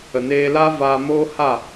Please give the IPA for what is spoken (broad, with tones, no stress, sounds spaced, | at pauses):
ə˨ n eː˧ l aː˦ v aː˧ m oː˦ h a˦˨